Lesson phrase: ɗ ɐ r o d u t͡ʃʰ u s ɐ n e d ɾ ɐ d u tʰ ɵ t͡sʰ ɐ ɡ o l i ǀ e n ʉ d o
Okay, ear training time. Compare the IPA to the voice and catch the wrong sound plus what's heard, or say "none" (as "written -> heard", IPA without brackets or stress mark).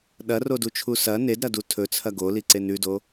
none